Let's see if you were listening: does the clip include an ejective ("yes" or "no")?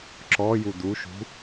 no